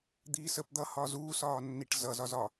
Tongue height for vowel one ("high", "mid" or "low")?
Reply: high